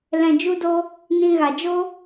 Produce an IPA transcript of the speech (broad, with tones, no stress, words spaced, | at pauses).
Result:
lɛ̃˨d͡ʒu˧do˧ | nĩ˧ɣa˨d͡ʒo˦